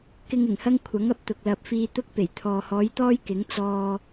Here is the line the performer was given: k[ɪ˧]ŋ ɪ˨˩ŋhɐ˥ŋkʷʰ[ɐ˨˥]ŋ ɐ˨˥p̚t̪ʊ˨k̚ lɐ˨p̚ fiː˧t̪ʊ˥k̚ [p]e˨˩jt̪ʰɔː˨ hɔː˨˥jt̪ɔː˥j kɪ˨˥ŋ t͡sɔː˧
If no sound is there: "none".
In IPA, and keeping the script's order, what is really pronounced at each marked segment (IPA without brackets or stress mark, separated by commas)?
ɪ˧, ɐ˨˥, p